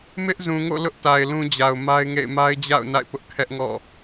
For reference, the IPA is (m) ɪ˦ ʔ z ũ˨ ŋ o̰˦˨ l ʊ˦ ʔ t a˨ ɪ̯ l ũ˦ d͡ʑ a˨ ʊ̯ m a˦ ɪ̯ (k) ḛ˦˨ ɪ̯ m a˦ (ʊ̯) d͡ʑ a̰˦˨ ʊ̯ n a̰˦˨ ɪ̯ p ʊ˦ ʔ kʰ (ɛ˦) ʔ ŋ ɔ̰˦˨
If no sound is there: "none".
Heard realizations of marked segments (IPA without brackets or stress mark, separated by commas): m, ŋ, ɪ̯, ɛ˦